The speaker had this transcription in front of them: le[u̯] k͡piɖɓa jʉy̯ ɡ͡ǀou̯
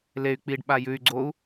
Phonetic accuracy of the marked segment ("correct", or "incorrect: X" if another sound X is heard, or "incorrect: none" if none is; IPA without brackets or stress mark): incorrect: y̯